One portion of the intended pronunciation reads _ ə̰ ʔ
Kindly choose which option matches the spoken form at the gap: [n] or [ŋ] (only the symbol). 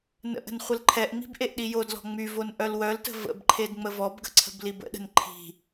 n